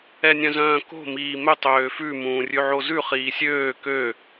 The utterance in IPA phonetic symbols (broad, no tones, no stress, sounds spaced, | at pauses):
ɛ nʲ œ̃ z œ̃ː k o̤ m iː m ɵ tˤ øː f ʉ m ũː rʲ ʉ ʕ o z ʉ χ iː sʲ øː k ø